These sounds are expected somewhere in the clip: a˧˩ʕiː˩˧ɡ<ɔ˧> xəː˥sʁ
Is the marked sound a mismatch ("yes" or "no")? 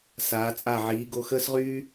yes